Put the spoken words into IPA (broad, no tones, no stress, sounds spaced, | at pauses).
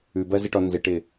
ʉ b ɜ z ɪ ʈ ɔ n z ɪ ʈ ɪ